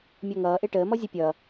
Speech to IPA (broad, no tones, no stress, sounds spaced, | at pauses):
mʲ ɔ ŋ ʌː ʔ e ʈ əː m ɔ zʲ ə pʲ ʌː